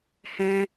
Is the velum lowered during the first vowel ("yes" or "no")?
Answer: yes